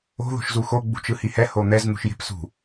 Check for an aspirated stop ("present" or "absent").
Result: absent